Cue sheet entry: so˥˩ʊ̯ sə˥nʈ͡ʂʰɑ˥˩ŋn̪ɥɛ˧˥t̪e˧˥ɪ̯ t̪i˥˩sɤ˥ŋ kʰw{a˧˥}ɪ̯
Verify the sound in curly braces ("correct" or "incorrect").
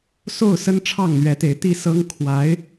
correct